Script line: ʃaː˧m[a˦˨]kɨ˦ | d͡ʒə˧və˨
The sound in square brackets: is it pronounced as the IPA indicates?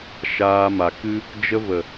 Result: no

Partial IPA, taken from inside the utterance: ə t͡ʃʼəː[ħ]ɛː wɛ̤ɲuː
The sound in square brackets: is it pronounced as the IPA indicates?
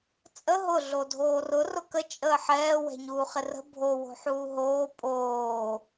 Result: yes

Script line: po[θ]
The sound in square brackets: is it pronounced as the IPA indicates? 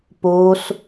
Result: no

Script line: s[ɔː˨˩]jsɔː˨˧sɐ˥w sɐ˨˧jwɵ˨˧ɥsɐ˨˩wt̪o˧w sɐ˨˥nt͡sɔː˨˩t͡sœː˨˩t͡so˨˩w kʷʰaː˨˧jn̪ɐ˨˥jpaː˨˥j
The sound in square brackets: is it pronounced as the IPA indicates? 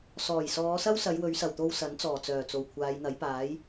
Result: yes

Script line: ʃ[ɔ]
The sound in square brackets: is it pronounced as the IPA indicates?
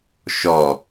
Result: yes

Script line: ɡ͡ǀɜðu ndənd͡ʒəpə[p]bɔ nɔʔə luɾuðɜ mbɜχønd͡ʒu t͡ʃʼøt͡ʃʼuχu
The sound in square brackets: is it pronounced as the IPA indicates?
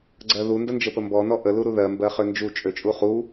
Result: no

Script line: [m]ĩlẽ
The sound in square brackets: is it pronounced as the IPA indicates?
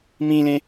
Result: yes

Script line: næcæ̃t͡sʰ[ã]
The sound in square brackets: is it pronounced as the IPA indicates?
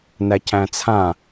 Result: yes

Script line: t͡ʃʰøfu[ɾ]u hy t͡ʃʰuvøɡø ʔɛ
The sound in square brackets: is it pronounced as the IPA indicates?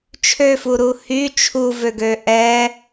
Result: yes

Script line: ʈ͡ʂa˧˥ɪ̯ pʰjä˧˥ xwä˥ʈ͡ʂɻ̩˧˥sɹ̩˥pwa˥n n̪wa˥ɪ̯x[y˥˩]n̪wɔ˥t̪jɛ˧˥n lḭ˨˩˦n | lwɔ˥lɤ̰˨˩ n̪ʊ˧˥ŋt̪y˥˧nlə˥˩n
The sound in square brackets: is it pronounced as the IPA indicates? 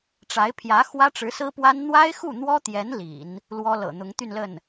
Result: no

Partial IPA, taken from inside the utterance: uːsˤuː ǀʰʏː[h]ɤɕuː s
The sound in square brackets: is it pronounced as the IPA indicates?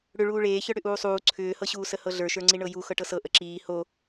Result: yes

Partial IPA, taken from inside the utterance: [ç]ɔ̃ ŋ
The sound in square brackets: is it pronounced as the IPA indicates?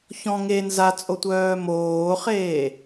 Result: yes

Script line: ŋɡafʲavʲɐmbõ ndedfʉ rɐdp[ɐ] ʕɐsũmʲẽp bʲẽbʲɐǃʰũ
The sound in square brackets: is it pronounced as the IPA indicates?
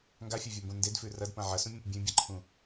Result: no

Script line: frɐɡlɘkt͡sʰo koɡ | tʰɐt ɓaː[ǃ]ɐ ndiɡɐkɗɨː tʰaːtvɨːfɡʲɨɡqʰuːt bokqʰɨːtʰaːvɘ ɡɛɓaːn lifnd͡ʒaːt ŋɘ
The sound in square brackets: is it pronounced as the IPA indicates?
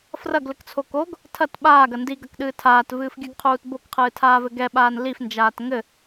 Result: no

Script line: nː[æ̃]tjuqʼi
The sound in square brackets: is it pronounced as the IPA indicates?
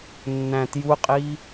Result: yes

